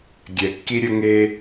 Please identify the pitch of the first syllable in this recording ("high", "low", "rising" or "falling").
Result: low